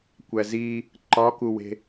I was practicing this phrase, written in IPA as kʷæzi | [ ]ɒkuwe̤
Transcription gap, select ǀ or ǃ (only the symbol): ǃ